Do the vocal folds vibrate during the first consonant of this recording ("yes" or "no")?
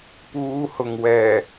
no